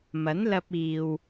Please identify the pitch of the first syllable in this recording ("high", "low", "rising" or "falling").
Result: rising